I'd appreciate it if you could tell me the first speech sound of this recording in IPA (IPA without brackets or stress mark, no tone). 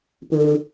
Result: p